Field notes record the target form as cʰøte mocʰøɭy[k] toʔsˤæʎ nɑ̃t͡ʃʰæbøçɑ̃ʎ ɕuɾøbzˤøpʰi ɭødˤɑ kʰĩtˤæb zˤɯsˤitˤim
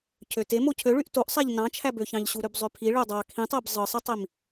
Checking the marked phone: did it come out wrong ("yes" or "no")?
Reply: yes